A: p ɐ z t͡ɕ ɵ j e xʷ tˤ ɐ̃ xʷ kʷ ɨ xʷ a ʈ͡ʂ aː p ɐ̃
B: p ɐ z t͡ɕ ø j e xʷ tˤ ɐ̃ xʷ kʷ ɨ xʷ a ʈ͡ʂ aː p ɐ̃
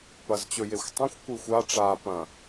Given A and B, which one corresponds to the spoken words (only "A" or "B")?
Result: A